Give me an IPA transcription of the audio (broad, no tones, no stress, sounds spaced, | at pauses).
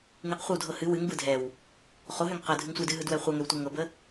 ŋ ɯ q χʷ ɤ w dʱ ɤ h ɨ w ɨ ŋ b ɯ dʱ ɛ w | χ o ɦ ø ŋ q ɤ dʱ ɨ ŋ sʷ ɯ d ɨ ɦ ɯ d w ɛ χʷ ɤ ŋ ø w tʷ ɛ ŋ ɤ b ə